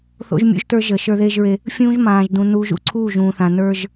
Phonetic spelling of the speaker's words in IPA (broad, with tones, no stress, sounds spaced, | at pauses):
θ o̰˦ ʒ mʲ ṵ˦ ʒ t ə˞˦ ʒ ə˨ ʃ ə˞˦ ð eː˦ ʒ ɹ e˦ | fʲ ũː˦ ʒ m ãː˨ ʒ d ũ˨ n uː˨ ʒ ṵ˨ ǀʰ uː˦˨ ʒ ũː˨ θ ã˨ n ə˞˦ ʒ